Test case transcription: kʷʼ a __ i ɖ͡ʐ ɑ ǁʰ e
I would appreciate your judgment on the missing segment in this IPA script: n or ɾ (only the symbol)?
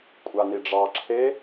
n